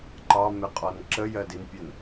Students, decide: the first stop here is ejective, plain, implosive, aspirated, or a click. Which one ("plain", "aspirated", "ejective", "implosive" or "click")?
click